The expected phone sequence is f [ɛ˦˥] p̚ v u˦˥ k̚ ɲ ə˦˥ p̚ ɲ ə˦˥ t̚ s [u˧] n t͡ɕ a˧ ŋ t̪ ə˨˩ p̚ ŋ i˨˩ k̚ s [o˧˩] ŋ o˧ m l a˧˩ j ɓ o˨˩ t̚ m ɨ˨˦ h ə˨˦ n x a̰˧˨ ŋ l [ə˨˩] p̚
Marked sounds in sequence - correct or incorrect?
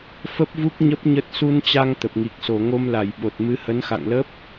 incorrect, correct, correct, incorrect

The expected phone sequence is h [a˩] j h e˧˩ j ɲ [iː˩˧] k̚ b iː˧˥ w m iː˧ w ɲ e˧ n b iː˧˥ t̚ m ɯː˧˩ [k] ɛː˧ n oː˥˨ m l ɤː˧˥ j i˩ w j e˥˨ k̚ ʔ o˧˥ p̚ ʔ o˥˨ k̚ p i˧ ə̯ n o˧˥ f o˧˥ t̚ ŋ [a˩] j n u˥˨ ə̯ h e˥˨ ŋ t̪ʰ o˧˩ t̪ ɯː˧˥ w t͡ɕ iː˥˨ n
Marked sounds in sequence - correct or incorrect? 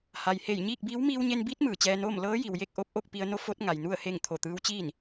correct, incorrect, incorrect, correct

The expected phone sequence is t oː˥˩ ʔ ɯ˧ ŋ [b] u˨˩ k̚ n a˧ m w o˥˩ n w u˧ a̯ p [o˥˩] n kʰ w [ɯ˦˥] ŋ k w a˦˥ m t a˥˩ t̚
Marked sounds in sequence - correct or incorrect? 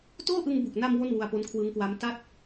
correct, incorrect, correct

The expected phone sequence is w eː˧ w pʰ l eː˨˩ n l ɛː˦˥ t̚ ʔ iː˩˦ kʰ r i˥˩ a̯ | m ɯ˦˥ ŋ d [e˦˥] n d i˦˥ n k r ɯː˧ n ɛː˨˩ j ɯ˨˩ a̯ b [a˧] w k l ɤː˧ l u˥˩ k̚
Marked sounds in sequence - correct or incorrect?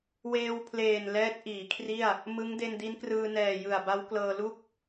incorrect, incorrect

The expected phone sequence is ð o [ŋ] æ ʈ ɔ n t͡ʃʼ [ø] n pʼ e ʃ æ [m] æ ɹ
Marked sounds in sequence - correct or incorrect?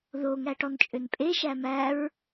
correct, correct, correct

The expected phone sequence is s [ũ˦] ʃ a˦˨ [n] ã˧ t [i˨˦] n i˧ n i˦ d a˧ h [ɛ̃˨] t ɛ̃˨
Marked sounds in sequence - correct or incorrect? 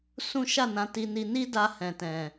correct, correct, incorrect, correct

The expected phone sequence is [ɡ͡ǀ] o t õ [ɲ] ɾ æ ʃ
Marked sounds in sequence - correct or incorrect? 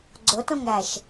correct, incorrect

